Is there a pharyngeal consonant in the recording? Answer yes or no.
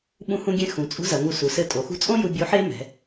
yes